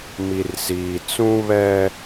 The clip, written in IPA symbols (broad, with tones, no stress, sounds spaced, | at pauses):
m i˨ r s iː˨ t͡s ũ˦ β ɛ˦